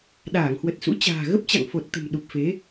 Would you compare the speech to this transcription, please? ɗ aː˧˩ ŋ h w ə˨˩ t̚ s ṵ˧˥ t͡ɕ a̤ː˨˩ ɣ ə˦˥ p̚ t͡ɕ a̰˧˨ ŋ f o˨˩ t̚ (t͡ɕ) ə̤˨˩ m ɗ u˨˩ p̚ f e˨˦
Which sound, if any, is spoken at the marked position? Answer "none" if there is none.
t̪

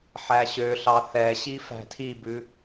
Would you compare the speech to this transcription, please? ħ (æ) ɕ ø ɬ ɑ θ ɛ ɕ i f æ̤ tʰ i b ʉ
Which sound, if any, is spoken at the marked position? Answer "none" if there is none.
æ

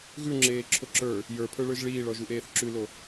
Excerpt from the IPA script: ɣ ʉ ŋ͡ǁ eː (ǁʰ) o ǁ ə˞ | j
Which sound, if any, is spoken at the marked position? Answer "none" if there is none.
ǁʰ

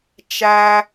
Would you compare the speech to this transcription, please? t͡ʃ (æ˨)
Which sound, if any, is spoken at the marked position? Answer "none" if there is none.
æ˨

